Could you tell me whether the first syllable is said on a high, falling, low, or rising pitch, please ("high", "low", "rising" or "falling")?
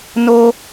high